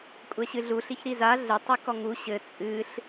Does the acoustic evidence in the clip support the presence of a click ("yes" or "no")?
no